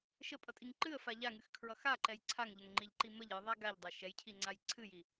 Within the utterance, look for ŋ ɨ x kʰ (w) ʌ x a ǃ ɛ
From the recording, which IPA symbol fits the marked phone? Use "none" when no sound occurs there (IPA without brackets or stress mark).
ɹ